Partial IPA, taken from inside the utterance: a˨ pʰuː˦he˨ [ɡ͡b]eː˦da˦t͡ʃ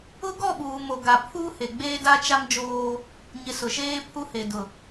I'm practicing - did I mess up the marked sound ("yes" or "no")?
no